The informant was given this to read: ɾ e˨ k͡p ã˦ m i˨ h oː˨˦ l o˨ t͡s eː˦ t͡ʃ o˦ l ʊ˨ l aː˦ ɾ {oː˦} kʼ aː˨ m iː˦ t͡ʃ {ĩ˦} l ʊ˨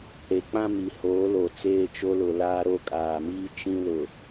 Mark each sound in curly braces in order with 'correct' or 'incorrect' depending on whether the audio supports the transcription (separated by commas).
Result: incorrect, correct